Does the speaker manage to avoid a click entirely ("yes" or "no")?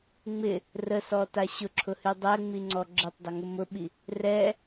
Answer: no